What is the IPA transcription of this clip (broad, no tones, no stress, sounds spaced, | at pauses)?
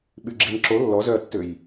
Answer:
ɓ y ɡ͡ǁ i n ǁ o lː ɔ z œ ɐ̯ tː ø j